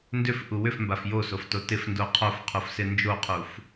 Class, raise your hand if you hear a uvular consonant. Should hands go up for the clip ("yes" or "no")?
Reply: yes